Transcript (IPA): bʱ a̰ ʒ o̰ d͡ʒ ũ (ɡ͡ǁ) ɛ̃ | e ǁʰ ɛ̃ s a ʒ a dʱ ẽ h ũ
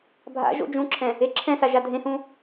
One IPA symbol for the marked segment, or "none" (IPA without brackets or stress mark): ǁʰ